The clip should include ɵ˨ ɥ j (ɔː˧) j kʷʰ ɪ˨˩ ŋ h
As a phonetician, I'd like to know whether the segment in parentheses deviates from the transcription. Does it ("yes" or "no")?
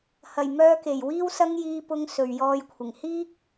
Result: no